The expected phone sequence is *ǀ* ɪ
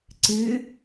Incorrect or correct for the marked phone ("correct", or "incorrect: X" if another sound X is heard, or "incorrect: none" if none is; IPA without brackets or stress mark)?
correct